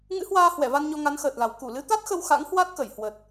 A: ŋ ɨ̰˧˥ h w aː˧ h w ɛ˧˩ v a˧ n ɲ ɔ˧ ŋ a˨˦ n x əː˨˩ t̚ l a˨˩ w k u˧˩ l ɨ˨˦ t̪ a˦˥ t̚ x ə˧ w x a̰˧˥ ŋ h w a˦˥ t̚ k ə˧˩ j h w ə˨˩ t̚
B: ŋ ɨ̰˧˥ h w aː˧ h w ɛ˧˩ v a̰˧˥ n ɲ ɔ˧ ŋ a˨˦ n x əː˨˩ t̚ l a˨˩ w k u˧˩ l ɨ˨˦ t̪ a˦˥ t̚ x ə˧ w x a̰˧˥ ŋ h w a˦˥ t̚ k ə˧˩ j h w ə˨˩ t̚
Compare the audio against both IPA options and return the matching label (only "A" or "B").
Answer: A